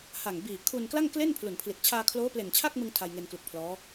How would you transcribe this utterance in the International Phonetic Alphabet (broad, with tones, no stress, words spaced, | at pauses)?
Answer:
ha˨˩ŋbiː˨˩ kʰu˧nkla˥˩ŋkle˥˩n pʰlu˨˩npʰli˨˩t̚ t͡ɕʰaː˧kʰloː˦˥ple˨˩n t͡ɕʰa˥˩k̚mɯ˧ŋ tʰa˧jŋe˧nklu˨˩k̚pʰlɔː˦˥